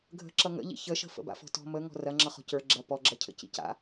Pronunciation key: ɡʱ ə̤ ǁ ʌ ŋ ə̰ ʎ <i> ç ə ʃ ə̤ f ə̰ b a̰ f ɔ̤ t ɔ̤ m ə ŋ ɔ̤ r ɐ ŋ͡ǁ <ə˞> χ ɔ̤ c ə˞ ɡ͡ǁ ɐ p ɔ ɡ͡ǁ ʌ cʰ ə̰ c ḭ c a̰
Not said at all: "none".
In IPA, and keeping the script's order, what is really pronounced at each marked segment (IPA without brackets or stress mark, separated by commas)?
ḭ, ʌ